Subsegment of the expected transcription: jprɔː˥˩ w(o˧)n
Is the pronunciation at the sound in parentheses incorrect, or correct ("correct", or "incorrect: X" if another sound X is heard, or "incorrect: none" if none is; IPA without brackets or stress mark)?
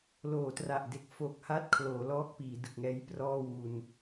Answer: incorrect: u˧